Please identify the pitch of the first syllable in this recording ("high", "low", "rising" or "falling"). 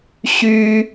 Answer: high